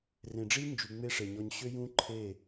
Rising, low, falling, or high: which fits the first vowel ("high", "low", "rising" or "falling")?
low